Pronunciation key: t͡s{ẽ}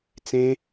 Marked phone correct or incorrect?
correct